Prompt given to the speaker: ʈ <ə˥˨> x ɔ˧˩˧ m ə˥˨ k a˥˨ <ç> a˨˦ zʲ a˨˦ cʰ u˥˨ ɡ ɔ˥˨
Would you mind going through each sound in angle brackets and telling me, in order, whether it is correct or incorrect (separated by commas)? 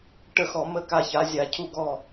correct, correct